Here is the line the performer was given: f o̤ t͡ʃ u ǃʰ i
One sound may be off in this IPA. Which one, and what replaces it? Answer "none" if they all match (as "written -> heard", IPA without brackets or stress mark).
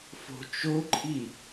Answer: u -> o